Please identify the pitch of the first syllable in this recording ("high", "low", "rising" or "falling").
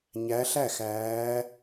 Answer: rising